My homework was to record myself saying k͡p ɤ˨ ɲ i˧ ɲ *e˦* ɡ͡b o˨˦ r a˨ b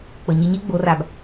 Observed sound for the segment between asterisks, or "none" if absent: e˦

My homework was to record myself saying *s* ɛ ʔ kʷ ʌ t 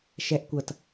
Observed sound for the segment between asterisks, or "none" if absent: ʃ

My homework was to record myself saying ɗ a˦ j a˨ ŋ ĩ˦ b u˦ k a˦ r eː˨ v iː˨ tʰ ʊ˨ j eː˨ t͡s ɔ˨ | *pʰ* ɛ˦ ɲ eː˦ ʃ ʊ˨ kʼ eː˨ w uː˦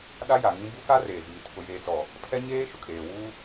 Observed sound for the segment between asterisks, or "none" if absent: pʰ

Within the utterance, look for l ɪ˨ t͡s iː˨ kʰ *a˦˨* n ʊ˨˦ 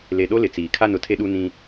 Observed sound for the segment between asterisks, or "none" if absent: a˦˨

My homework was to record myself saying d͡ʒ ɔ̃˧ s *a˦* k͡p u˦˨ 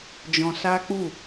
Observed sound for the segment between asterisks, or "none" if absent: a˦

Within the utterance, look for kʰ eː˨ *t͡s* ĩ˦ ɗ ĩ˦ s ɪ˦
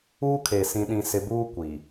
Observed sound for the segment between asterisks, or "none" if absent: s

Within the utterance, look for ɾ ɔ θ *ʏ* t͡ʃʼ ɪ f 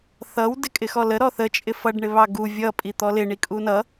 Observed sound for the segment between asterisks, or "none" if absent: ə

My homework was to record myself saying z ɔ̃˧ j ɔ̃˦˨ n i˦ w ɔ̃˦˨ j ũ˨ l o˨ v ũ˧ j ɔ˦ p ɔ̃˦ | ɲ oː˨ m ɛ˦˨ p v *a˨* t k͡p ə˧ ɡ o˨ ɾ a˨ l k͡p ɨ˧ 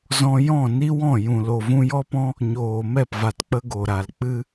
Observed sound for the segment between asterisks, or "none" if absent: a˨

